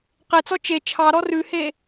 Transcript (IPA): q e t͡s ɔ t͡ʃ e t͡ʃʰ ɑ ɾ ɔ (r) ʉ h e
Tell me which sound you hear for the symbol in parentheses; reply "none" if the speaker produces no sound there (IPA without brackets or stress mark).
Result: r